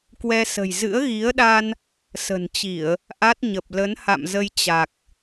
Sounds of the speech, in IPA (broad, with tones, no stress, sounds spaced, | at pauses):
k w ɛ˧ s ə̤˨˩ j z ɨ̰˧˥ ə̯ ɣ i˨˦ ə̯ ɗ a˧ n | s ə̤˨˩ n t͡ɕ i˧˩˨ ə̯ | ʔ a˦˥ t̚ ɲ ə˨˩ p̚ l ə˨˦ n h a̰˧˨ m z ə˧ j t͡ɕ a˨˩ k̚